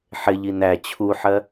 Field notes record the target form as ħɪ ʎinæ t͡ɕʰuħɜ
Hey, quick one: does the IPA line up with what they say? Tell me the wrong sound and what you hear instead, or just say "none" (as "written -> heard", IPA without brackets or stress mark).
none